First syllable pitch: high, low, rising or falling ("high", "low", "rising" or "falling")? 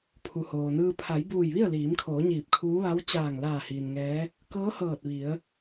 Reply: low